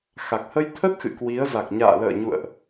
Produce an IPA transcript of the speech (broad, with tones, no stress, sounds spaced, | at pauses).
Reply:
x a˨˩ k̚ h ə˧ j t̪ʰ ə˦˥ t̚ x ɨ̰˧˨ k w i˨˦ ə̯ z a˨˩ k̚ ɲ a̰ː˧˨ l ə̰ː˧˨ ɲ ṵ˧˨ ə̯ ʔ